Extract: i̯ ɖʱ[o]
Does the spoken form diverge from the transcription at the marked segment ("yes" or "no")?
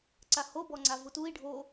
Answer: no